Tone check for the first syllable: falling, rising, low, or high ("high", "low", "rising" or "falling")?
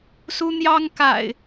high